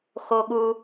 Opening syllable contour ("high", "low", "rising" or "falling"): high